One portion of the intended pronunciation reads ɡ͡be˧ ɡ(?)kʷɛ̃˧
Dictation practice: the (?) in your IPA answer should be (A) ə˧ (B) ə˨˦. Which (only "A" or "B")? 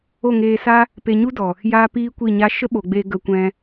A